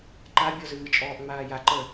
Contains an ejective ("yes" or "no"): yes